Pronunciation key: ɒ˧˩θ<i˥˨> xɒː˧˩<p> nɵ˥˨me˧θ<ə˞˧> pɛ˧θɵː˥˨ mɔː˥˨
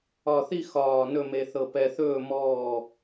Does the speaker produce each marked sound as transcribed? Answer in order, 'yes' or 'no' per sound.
yes, no, no

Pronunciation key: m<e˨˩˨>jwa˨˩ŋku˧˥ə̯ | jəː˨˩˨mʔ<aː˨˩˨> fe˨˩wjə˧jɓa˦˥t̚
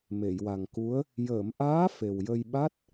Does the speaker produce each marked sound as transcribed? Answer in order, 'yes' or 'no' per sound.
yes, no

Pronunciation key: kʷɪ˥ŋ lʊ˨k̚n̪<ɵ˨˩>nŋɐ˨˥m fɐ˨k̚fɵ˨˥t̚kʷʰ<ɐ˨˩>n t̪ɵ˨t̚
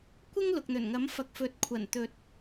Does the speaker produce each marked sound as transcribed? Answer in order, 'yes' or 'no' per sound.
yes, yes

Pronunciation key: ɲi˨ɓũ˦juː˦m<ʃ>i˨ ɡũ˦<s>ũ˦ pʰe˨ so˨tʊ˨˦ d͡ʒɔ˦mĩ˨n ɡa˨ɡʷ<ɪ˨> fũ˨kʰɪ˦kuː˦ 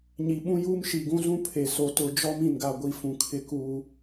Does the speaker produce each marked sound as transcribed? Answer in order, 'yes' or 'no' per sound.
yes, no, no

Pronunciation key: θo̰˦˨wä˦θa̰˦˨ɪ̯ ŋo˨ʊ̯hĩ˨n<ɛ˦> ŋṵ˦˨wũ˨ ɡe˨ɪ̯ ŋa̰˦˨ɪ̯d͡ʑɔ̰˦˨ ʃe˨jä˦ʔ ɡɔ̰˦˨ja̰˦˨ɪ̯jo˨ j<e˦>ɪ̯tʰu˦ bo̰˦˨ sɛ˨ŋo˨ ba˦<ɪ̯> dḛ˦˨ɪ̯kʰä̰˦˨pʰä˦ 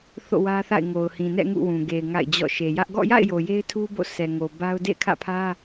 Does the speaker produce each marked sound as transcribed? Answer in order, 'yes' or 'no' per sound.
no, yes, no

